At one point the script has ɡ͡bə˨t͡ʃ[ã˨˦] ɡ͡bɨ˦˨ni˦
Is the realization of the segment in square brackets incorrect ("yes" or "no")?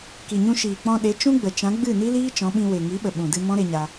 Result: no